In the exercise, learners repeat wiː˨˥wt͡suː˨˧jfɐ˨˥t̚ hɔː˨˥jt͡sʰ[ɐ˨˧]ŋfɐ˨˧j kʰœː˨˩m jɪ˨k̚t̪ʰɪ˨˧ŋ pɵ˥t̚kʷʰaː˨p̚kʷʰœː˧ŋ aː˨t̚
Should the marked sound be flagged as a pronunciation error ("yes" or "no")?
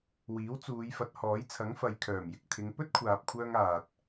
yes